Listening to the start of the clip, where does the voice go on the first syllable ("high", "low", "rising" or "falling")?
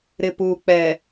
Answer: low